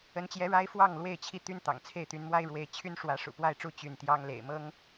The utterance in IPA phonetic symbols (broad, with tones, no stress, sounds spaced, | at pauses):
ə˨˦ n t͡ɕ j ɛ˨˦ ɻ a˦ ɪ̯ f w ɑ˥˨ ŋ l w e˥˨ ɪ̯ t͡ɕʰ i˥˨ t̪ y˦ n t̪ ɑ̰˨˩ ŋ t͡sʰ e˥˨ ɪ̯ t̪ y˨˦ n m w a˦ ɪ̯ ɻ w e˨˦ ɪ̯ t͡ɕʰ y˦ n ʂ w ä˨˦ ʂ ṵ˨˩ p w a˥˨ ɪ̯ ʈ͡ʂ u˥˨ t͡ɕ y˥˨ n t̪ j ɑ˦ ŋ l ḛ˨˩ ɪ̯ m ɤ˦ ŋ